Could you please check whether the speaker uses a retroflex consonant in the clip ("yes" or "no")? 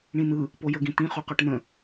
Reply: yes